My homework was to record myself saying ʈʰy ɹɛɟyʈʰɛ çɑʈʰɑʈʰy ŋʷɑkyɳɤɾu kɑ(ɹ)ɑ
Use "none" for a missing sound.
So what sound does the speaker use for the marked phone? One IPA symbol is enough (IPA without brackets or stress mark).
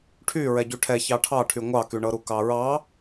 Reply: ɹ